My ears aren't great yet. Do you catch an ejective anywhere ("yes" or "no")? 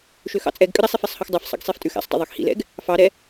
yes